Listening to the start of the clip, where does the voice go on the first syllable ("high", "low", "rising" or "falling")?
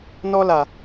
high